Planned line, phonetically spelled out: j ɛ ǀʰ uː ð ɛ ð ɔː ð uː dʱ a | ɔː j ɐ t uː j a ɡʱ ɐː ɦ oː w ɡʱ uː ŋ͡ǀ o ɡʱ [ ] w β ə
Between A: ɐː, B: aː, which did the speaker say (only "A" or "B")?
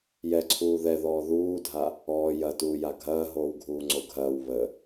A